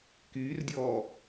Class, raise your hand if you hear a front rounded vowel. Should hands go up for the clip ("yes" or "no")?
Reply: yes